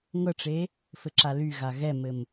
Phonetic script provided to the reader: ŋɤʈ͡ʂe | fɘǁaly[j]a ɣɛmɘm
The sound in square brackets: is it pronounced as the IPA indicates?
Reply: no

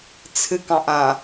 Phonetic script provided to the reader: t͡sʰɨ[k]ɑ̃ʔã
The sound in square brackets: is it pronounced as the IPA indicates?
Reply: yes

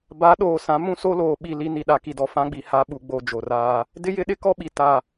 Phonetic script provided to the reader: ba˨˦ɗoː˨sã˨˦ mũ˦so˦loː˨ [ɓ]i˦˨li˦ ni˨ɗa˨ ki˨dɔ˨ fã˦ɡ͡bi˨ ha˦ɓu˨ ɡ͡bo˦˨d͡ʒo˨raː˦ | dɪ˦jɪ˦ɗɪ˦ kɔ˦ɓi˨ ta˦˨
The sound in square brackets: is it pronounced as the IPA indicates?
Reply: yes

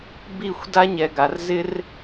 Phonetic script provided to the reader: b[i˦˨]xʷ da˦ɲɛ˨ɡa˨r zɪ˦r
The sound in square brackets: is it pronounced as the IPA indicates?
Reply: yes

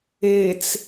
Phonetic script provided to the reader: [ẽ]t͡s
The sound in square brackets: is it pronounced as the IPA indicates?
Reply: no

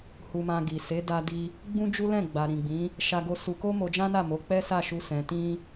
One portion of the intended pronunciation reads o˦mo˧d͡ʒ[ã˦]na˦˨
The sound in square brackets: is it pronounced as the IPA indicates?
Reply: yes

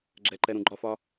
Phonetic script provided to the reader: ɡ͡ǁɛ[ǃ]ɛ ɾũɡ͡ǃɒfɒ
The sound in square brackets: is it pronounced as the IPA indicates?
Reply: yes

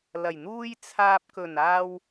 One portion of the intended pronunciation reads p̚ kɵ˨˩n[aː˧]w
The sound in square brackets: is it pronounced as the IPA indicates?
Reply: yes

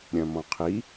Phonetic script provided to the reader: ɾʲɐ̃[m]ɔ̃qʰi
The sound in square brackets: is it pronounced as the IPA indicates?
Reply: yes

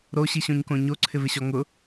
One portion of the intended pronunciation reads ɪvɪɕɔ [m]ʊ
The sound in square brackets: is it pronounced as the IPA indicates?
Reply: no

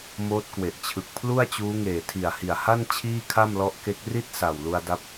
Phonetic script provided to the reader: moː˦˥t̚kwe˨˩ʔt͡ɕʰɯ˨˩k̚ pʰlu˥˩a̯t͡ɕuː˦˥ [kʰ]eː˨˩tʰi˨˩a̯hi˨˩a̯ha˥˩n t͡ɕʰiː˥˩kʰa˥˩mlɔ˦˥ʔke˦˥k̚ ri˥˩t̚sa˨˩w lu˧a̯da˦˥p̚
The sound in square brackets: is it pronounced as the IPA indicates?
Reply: no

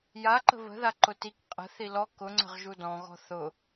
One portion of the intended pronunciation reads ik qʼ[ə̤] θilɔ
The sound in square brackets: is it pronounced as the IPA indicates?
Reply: yes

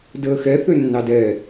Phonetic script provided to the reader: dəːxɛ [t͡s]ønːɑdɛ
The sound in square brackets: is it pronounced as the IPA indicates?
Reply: no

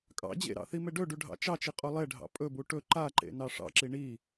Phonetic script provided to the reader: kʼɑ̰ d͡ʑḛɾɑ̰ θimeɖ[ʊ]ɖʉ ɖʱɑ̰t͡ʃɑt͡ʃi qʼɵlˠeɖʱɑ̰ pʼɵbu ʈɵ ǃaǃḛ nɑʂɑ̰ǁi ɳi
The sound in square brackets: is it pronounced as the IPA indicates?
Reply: no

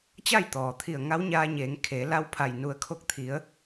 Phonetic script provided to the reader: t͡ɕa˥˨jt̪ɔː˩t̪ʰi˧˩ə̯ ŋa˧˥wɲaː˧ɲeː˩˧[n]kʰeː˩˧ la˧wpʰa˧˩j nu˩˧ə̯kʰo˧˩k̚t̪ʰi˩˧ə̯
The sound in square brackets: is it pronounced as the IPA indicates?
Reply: no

